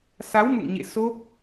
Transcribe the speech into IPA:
s a˨˦ w m ṵ˧˨ ŋ ɲ ḛ˧˨ s o˦˥ p̚

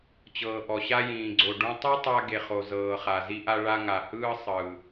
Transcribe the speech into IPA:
t͡ɕ ɤː˩ ʔ ɔ˩ ɕ a˧ j ĩː˩ ɡ͡ǀ o˩ ɖ ũ˧ tˤ u˥ tˤ a˧ ɡ e˩ χ o˩ z ɤː˩ χ a˩ z i˧ ʔ a˧ ɭ a˧ ŋ a˩ h ɯː˧ sˤ ɯː˩

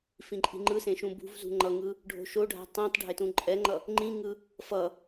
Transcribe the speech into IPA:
f ĩ ǃʼ i̤ ŋ͡ǃ ɯ s ẽ ʃ ũ b ṳ v z ṳ ŋ͡ǃ ʌ ŋ ɯ | ɖʱ o̤ ʃ o ɖʱ a̤ tˤ ĩ tˤ ɖʱ e t ũ ǃʼ ɛ ŋ͡ǃ ʌ | ŋ͡ǃ ĩ ŋ ɯ | f ʌ

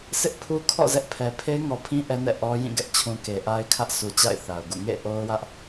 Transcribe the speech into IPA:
sʰ ɪ˦ ʔ pʰ u˦ kʰ ɔ̰˦˨ z ɛ˦ ʔ pʰ ɛ˨ pʰ e˦ ɪ̯ ŋ ɔ˨ pʰ ĩ˦ ʔ ɛ˦ n ɛ̰˦˨ ʔ ɔ˦ j ĩ˦˨ ɡ ɛ˦ ʔ t͡ɕʰ ũ˨ k e˨ ʔ a˦ ɪ̯ kʰ ä˦ ʔ sʰ u˨ t͡ɕ a̰˦˨ ɪ̯ θ a˨ ʊ̯ ɡ ṵ˦˨ ŋ ḛ˦˨ ʔ o˦ ʊ̯ w ä˦ ʔ

